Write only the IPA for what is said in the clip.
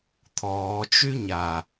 t̪ʰ ɔː t͡ʃ y ɲ a

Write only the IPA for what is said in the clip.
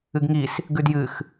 ɨ ɡ ŋ i s | ɡ ʉ d j ɨ x

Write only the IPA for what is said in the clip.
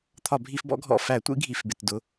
t̪ʰ ɒ˧˩˧ bʱ i˧˩˧ f b ɔ̰˨˥ ɡʱ ɔ̰˩˧˩ f æ˧˩˧ tʷ ḭ˨˥ ɡʱ i˩˧˩ f b ɪ˩˧˩ t d ʊ˩˧˩

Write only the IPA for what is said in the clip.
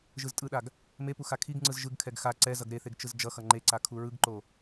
ʒ ɯ z tʼ ɯ ɗ a ɡ | m e p u x a kʰ i ɡ ŋ͡ǀ ɯ z ʒ ɯ ɡ kʰ ɛ ɡ x a ǀ ɛ z ʌ ɡ ɾ e θ e ɡ t͡ʃ ɯ z d͡ʒ ʌ x ʌ ŋ͡ǃ e ǀ a kʰ u ɹ ɯ ɡ ǃ o

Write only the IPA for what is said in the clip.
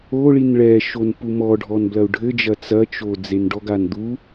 o ɭ i n ɭ ɛ ʃ o n p u m ɔ ɖʱ ɔ n b l ɐ u̯ ɖʱ ɘ d͡ʒ ɐ t͡s ɐ t͡ʃ o d͡z e n ɖ ɔ ɡ a n d̪ u

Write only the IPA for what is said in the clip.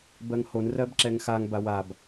b ɜ ŋ h o n r ɜ b ǁ ɛ ŋ x a ŋ b a w a b

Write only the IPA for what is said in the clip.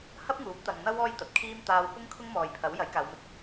h ɐ˥ p̚ ŋ uː˨˥ p̚ t̪ ɐ˨ ŋ n̪ ɐ˥ w ɔː˥ j t̪ ɐ˨ t̚ kʰ iː˥ m t̪ aː˧ w p ʊ˥ ŋ kʰ ʊ˥ ŋ m ɔː˨ j pʰ ɐ˨˥ w j ɐ˨˥ j k aː˨˧ w m ɪ˧ k̚

